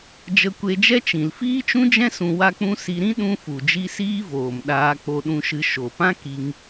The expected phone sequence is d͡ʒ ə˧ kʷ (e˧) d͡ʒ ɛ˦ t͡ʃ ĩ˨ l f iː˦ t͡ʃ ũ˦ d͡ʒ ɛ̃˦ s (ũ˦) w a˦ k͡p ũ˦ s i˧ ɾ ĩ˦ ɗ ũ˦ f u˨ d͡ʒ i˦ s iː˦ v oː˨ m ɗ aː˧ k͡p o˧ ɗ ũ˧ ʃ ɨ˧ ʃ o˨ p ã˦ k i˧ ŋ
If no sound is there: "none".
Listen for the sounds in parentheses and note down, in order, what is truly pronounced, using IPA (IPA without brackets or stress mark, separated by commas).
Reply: e˧, ũ˧